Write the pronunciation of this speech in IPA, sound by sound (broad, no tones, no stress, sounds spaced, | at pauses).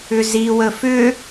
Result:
ʏ z i w ə f ʏ